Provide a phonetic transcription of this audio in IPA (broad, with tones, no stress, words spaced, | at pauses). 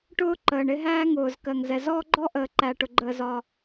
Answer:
ʈʊː˦ ǃəː˨ɳɪ˦ɦæː˦ŋʊː˨z kɜ˨ŋzɛ˨ zɔː˦ɡ͡ǃɔ˦ʔəː˨ǃæ˨ ʈʊ˨ɡ͡ǃəː˨zɒ˨